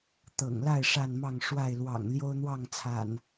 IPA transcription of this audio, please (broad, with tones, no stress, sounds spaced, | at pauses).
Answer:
t̪ ɤ̰˨˩ ŋ l a˥˨ ɪ̯ ʂ a˥˨ n m ɑ˥˨ ŋ ʂ w a˥˨ ɪ̯ l w ɑ̰˨˩ ŋ l j o˦ ʊ̯ n̪ w ɑ˥˨ ŋ t͡sʰ a̰˨˩ n